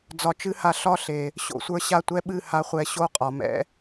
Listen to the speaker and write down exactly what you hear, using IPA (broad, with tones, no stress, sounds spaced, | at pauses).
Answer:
d͡z ɒ˨ t͡ʃ ɨ˧ h a˨ ɬ ɒ˦ ɬ e˨ | ɕ o̰˧ sʷ ə˞˧ ɕ a˦˨ tʷ ɛ˧ ɓ ɨ˦˨ h a˧ χʷ ɛ˧ ɕ o˦ qʼ ɒ˨ m ɛ̰˧